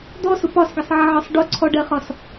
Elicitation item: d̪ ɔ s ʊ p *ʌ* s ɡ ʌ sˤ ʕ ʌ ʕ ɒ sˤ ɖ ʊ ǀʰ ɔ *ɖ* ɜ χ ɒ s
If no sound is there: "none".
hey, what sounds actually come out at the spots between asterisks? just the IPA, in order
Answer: ɒ, ɖ

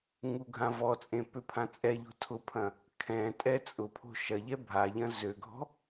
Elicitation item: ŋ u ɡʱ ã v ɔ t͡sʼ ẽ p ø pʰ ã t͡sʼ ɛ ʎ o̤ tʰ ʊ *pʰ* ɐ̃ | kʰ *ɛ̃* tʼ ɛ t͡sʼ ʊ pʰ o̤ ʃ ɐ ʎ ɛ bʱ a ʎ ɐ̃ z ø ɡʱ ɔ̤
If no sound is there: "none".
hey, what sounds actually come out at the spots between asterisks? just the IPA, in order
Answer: pʰ, ɛ̃

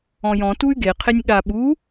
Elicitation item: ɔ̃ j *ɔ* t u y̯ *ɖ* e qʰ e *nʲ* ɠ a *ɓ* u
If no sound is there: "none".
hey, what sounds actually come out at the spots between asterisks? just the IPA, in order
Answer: ɔ̃, ɡ, nʲ, ɓ

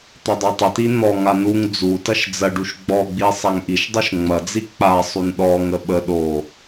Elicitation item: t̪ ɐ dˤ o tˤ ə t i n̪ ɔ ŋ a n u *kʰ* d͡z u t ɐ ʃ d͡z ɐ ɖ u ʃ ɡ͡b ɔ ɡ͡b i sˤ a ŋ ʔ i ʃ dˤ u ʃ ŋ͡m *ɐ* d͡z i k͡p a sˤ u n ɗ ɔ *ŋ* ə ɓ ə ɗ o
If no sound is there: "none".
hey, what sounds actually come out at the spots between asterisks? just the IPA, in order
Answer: ŋ, ɐ, ŋ

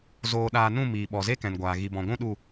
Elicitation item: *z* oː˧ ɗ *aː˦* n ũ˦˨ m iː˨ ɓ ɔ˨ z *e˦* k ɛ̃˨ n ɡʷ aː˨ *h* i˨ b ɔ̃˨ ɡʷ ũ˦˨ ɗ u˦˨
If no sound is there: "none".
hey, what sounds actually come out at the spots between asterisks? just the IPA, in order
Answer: z, aː˧, e˦, ɣ

